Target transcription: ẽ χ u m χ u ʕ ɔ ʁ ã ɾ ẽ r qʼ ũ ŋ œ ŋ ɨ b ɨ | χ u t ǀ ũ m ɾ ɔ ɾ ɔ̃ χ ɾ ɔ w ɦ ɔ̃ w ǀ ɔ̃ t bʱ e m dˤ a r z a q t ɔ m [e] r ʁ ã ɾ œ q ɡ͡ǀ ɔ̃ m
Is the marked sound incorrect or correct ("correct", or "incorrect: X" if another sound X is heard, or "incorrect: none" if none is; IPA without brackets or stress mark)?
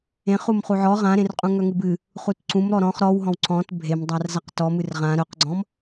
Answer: incorrect: ɨ